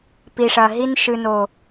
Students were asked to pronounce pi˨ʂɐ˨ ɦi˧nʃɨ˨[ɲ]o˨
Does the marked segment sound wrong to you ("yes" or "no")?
yes